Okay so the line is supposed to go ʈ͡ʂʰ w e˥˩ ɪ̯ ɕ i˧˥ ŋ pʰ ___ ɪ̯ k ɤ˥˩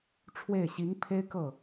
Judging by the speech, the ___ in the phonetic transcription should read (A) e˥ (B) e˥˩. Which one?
A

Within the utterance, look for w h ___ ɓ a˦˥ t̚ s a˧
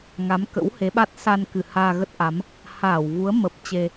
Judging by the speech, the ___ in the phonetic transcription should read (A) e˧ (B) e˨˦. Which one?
B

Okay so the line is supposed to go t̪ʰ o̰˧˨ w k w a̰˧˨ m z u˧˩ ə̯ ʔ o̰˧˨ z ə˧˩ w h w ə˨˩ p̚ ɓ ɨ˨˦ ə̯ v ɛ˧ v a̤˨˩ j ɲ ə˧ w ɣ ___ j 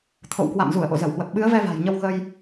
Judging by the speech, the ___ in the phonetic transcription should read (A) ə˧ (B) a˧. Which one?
A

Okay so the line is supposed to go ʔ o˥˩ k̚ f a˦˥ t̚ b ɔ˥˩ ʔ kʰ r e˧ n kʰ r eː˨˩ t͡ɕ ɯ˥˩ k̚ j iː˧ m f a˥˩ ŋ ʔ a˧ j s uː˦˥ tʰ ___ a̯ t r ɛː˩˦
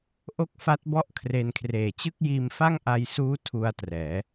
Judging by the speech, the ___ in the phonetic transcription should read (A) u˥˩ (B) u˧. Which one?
B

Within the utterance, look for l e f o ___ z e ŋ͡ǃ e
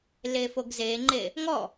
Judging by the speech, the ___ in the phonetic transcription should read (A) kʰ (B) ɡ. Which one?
B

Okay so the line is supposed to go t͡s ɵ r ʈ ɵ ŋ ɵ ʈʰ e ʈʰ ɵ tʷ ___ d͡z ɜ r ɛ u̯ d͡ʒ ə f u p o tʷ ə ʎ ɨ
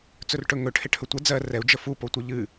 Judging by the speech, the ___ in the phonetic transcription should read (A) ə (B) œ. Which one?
A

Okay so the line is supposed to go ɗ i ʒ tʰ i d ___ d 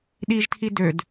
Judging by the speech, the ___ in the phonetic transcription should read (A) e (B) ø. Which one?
B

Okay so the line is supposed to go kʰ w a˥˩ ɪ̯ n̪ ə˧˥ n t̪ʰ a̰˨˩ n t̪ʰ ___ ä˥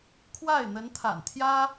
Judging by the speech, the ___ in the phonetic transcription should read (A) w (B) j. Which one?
B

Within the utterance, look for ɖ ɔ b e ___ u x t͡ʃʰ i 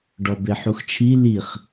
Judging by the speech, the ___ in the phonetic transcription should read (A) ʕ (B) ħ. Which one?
B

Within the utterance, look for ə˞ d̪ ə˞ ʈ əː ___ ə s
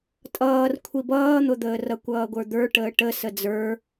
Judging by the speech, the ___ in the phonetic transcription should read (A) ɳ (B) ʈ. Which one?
B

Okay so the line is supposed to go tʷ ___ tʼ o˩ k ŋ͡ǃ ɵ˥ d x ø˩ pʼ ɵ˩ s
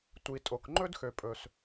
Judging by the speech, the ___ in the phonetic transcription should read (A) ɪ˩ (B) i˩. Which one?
B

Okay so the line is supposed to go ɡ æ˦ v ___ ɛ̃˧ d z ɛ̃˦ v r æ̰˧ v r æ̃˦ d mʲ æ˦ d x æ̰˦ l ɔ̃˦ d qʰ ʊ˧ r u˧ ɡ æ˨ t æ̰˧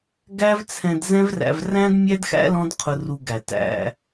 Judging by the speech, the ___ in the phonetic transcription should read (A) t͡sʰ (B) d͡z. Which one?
A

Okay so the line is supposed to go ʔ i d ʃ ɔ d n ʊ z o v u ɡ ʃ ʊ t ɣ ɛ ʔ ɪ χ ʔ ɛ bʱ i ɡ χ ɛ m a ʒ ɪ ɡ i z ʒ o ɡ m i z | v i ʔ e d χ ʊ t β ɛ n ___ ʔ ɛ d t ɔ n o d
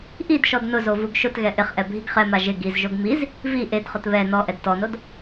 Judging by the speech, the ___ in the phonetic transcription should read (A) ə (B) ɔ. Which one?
B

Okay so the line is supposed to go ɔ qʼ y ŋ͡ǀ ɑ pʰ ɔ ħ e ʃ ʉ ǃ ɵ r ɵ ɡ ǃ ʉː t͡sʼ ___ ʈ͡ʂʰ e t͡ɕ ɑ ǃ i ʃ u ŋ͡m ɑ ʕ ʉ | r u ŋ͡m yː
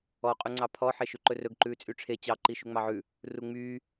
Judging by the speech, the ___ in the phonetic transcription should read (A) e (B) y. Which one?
B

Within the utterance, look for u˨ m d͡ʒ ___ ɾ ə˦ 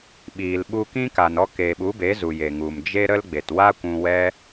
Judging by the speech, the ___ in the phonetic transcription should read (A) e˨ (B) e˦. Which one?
B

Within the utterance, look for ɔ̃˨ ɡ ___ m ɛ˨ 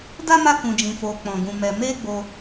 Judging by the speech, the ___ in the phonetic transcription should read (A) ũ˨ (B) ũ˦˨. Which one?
A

